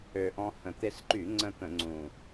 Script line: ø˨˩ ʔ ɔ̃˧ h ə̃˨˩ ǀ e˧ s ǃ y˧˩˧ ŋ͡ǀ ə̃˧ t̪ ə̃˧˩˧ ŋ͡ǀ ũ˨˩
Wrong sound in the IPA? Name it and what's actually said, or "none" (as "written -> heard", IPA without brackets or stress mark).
ǀ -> t̪